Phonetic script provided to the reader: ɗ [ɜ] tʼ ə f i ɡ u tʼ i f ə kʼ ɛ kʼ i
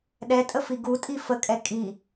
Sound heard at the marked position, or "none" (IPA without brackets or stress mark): ɛ